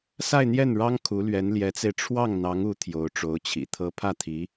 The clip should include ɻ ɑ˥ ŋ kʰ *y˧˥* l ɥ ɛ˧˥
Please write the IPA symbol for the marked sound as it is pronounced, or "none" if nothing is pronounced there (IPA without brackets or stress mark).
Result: u˧˥